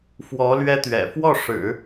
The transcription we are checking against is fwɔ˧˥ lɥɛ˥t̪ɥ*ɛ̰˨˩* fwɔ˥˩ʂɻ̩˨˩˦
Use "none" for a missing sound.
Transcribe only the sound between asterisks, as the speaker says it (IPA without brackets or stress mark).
ɛ̰˨˩